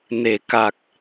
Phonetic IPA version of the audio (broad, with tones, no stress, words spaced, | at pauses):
ne˨˩˨ ka˨˩k̚